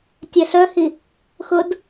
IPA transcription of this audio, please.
tʲ ɛ ɬ œ h i | x ʊ d

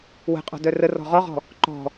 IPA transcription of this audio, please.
w ə̤ qʼ ɔ̤ d œ r ə r ɔ̤ ʁ ɔ ʁ ɔ̤ | ǃ ɔ̤

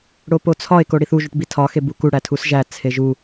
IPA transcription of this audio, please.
ɽ o p o t͡sʰ ɒ e̯ k o ɽ i θ u ʒ u ʈ b i tʰ ɒ x e b u k u ɽ æ tʰ u s ʒ æ t͡sʰ e ʒ u

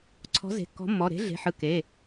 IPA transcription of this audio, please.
ǀʰ ɔ̤˨˥ z e̤˩˧˩ kː ɔ̤˨˥ mː ɔ˩˧˩ ɾ e̤˨˥ ɮ e̤˩˧˩ ħ ɯ˩˧˩ k e˩˧˩

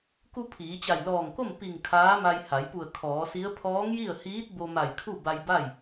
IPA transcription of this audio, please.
k u˧ pʰ iː˩˧ t͡ɕ a˧˩ j l ɔː˧˩ ŋ k o˥˨ m p i˧˩ ŋ kʰ aː˧˥ m a˧ j h a˩˧ j p u˧˩ ə̯ kʰ ɔː˩˧ s i˧˥ ə̯ pʰ ɔː˧˥ ŋ j i˥˨ ə̯ h iː˧˥ t̚ b o˧ m a˧˩ j kʰ u˥˨ b a˧ j b a˥˨ j

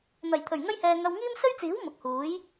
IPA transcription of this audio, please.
n̪ ɐ˨˩ j t̪ʰ ɵ˨˩ ɥ ŋ ɐ˥ j h ɛː˧ ŋ ɐ˧ w ŋ iː˥ m s ɵ˥ ɥ t͡s iː˨˥ w m ʊ˨ k̚ h uː˨˥ j

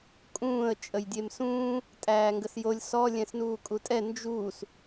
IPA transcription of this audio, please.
kʼ ũː ə̯ t͡ʃʼ ə j dʲ e m s ũː | tʼ æː ŋ ɡ ə s j o lʲ s ɔ lʲ ɛ̃ s n uː kʼ u tʼ ɛ n d͡ʒ uː s

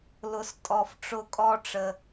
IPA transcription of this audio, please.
l ʊ˨ s tʼ ɔ˨ f ʈ͡ʂ ʊ˧ kʼ ɔ˦ ʈ͡ʂ ə˧

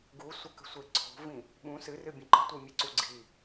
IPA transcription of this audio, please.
ɡ u sʷ ɐ k ə̤ sʷ e ǀʰ o̤ v ĩ | ɓ ũ s ɨ r ɨ bʲ ə̃ ǃ ə̤ tʷ ɨ mʲ e ǀ u ɡ͡ǀ i

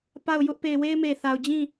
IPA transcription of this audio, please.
p a˦˨ ʊ̯ j ʊ˦ ʔ p e˦˨ ɪ̯ w e˦ ɪ̯ m e˨ θ a˨ ʊ̯ d͡ʑ ĩ˦˨

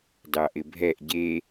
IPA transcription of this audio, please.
d ɑ ʔ ɪ bʱ ɛ ʔ ɟ e

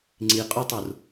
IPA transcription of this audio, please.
ŋ͡ǀ i qʼ u tˤ u r

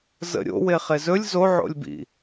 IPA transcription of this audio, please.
z ə̰ ɾʲ o̰ w e χ e z ɵ lʲ z o ʕ o̰ lʲ b ḭ

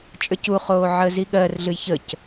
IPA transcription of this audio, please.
t͡ʃʼ ə˞ c u χ oː ʕ əː z i ɠ ɜ r ɮ ɨ j ç ə c

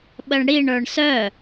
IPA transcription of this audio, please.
ɓ ə ɳ ɽ i ɳ ə˞ ɳ s œ

